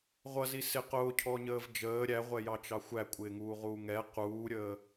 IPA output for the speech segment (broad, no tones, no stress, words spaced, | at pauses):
ʁʷʌzi sɪ qʊːcʰɔɲəːv d͡ʒəː ɾʲæʁʷɛjɑt͡ʃɑ xʷækʷʼɪːŋuːʁuː ŋɛ quːɾʲəː